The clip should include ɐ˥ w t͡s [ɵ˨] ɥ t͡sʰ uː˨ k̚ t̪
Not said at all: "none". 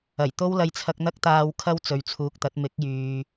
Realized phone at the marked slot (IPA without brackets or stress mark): ɵ˨